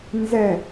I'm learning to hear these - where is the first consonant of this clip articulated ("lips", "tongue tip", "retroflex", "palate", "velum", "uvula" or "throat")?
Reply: tongue tip